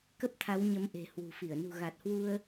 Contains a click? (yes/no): no